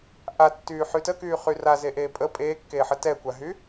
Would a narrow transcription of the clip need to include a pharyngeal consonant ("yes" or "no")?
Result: yes